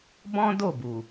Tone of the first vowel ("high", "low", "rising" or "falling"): high